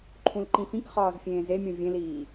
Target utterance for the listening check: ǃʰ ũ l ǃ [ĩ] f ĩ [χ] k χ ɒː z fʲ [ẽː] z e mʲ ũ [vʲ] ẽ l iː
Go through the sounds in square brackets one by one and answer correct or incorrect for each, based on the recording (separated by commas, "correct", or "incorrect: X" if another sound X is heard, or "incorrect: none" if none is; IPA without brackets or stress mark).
correct, incorrect: none, correct, correct